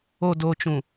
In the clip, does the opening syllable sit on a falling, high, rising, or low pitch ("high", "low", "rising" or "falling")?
low